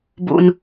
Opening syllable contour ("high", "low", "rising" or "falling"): low